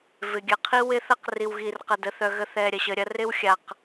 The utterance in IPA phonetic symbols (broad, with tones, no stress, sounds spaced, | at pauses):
v ɪ˨ ɡʲ ɐ˨ qʰ i˦ w ɪ˦ θ ɐ˦ q r i˨ w ɣ i˨ r q ɐ˨ d ə˨ θ œ˨ ɣ ə˨ θ ɛ˨ ɾʲ ɐ˨ ɕ ə˨ ɾʲ ɐ˦ r ɪ˦ w xʲ a˨ q